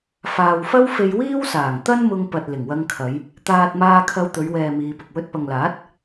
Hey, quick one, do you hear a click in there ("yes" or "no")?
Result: no